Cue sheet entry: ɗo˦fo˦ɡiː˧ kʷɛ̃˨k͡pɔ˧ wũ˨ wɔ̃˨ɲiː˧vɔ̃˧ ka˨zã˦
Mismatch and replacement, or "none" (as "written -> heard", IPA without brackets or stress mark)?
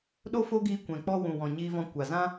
k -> kʷ